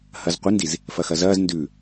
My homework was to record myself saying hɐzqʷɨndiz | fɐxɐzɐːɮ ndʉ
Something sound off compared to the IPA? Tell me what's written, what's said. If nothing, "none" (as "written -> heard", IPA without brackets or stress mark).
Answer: ɮ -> z